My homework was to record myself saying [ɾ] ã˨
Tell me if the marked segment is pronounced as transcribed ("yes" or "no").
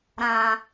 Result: yes